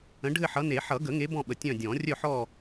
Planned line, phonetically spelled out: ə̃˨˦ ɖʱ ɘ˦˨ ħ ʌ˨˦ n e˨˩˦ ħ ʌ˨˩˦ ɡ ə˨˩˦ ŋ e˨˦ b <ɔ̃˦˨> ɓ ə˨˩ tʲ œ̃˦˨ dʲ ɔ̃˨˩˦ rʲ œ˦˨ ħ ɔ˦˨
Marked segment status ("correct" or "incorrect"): correct